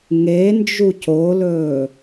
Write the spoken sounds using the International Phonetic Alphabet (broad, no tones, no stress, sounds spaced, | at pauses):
ŋ e n d͡ʒ u c o l ɵː